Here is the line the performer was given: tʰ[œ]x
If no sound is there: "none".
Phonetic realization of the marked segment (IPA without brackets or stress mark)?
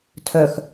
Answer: œ